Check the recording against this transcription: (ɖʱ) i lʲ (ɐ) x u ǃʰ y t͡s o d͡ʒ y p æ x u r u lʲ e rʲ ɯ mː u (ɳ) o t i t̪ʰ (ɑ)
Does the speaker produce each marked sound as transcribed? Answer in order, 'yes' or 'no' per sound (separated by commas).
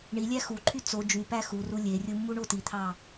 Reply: no, no, yes, yes